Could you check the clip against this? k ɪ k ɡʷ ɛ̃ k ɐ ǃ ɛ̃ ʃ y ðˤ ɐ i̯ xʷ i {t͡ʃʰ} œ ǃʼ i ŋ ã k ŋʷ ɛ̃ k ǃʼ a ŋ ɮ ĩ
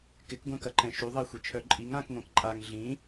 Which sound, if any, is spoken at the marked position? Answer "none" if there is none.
t͡ʃʰ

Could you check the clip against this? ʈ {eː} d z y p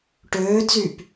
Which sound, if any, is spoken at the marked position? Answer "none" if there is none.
øː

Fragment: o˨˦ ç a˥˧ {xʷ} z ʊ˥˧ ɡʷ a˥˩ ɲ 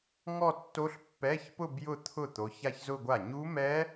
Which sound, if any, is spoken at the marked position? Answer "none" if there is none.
ç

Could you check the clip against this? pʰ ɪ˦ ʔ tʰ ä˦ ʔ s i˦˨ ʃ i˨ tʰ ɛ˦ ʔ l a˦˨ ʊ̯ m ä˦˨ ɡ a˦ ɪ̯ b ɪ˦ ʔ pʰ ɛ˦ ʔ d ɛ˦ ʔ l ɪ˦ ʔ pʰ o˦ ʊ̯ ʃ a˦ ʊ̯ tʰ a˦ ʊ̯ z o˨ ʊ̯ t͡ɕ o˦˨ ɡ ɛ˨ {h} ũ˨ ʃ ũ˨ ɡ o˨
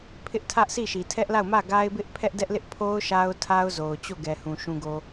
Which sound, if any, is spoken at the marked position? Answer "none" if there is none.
h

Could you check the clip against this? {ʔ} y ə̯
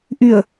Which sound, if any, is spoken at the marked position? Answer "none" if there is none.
ʔ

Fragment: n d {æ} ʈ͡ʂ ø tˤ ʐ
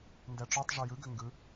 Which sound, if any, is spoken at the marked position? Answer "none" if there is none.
æ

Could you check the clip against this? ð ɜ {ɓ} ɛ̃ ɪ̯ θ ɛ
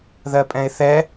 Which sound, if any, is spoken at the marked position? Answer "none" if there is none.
pʼ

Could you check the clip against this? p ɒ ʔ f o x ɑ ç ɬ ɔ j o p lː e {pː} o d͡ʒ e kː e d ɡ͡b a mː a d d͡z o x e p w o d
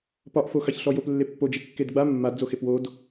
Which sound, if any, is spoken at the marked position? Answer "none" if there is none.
pː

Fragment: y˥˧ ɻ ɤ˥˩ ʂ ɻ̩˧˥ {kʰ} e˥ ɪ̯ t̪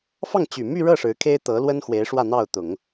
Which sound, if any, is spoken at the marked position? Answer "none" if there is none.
kʰ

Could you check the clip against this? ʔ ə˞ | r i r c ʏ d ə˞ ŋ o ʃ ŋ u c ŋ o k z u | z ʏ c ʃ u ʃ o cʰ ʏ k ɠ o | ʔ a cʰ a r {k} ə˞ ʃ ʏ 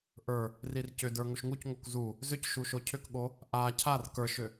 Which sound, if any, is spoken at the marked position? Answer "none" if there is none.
k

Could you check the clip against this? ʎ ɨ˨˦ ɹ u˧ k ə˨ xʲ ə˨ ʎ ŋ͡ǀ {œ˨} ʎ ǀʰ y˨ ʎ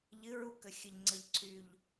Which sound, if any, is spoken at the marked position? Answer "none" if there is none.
ə˨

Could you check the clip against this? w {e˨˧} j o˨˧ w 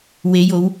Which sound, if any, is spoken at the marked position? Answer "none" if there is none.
e˨˧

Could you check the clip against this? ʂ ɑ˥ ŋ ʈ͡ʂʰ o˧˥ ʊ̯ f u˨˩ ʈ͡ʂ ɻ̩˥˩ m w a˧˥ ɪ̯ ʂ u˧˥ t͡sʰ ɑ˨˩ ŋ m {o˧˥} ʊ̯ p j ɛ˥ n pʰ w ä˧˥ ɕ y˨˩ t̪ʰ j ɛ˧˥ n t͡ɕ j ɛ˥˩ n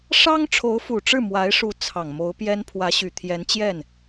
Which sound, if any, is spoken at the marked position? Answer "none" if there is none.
o˧˥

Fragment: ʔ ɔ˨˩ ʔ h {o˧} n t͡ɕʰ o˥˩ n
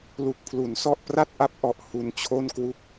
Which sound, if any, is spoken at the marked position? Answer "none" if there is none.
u˧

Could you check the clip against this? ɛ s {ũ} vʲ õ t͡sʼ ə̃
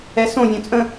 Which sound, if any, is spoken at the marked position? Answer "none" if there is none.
õ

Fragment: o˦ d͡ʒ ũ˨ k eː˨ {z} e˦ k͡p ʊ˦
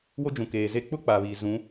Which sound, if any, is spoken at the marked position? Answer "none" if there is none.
z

